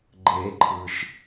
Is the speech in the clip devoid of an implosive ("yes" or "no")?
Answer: yes